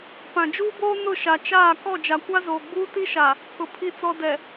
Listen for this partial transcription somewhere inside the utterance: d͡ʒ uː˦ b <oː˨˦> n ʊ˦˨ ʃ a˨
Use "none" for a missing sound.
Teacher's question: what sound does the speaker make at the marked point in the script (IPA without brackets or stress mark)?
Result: oː˦